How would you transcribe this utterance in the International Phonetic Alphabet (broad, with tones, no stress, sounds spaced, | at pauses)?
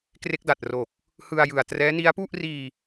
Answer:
k r e˦˥ k̚ d a˨˩ t̚ r o˨˩ k̚ | h ɯ˧ a̯ j ɯ˨˩ a̯ t r ɛː˦˥ n i˦˥ a̯ p u˥˩ ʔ r iː˧